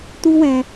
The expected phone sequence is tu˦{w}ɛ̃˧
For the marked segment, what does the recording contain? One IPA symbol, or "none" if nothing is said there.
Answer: w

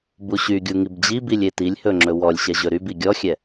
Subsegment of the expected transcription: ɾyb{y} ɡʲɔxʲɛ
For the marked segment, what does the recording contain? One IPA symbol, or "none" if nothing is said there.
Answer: i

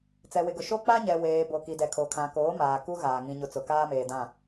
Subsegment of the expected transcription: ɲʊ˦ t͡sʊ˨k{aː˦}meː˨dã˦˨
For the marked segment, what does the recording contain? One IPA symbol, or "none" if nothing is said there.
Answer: aː˦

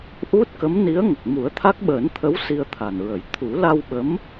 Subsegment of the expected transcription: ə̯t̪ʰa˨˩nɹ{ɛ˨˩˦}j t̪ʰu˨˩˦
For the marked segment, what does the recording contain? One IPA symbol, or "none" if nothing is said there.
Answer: ə˨˩˦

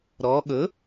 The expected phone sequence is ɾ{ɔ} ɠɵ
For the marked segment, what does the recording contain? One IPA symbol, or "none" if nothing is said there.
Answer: ɔ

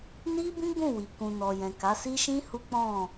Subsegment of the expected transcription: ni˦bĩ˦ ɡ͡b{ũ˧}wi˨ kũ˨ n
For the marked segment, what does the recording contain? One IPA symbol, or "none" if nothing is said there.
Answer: ũ˦˨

